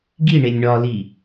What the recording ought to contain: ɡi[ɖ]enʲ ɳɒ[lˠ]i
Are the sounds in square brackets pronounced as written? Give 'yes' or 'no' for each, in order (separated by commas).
no, no